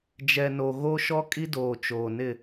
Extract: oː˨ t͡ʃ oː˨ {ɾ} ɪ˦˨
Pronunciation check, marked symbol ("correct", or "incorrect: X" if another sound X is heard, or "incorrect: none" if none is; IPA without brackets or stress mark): incorrect: n